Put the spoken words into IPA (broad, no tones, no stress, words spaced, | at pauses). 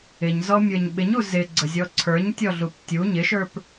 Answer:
ɪɲzɔmʲə˞ɲ ɓɪɲu zɪɡ͡ǀəzʲɔ ǀʰə˞ɲtʲɔɮup tʲu ɲɪʃə˞p